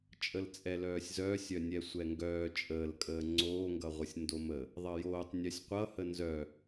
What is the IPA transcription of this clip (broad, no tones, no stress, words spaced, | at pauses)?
t͡ʃʼəlt͡sʼɛlœːsʲzœːsʲ œnʲɛsʷɛŋɡœː t͡ʃʼəːlkʼəː ŋ͡ǀoːŋɡʌʁʷəsʲ ndomə | ðˤʌjoːtˤ nʲœsʲqʷʌhə nzœ